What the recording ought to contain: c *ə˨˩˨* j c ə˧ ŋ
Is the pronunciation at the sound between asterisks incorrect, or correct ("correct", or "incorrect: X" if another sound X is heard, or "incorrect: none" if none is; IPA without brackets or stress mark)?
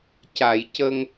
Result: incorrect: a˨˩˨